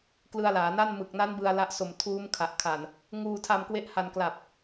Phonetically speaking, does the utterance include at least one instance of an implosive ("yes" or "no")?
no